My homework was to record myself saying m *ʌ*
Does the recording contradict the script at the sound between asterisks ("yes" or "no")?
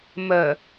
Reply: yes